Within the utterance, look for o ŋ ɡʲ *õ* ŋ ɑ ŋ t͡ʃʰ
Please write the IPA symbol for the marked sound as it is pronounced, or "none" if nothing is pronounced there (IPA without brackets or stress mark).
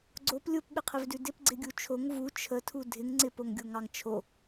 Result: o